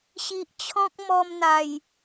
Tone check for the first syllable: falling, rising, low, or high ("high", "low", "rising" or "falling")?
low